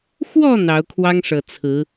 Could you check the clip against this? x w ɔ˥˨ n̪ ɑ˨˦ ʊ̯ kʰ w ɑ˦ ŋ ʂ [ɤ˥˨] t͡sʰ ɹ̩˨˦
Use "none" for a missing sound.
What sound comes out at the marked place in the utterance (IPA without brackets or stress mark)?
ɤ˨˩